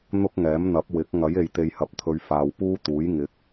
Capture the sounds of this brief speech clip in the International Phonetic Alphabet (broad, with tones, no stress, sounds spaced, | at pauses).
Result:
n̪ ʊ˥ k̚ ŋ ɛː˨˥ m n̪ ɐ˨˥ p̚ w ɪ˨˥ k̚ ŋ ɐ˨˥ j e˨ j t̪ e˨ j h ɐ˨˥ p̚ t̪ʰ ɵ˨ ɥ f aː˨ w p uː˥ t̪ uː˨˥ j ŋ ɪ˨˥ k̚